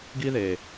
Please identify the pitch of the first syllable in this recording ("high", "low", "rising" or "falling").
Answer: high